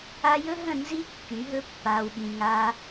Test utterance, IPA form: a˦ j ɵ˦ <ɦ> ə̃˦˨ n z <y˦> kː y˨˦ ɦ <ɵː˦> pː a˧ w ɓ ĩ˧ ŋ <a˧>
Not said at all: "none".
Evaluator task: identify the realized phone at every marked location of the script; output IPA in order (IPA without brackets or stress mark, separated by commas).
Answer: ɦ, i˦, ɵ˦, a˦